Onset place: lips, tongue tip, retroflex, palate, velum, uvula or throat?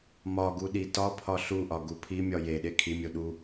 lips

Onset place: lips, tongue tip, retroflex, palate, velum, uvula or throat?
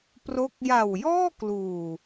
lips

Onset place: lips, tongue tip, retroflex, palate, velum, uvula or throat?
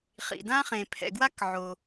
uvula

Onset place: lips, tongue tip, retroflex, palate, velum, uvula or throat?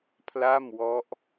lips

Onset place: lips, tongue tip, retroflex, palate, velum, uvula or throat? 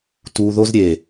tongue tip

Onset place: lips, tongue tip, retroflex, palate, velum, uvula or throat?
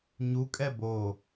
palate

